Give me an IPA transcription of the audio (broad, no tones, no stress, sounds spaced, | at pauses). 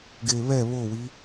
ɡ e β ɛ β o w i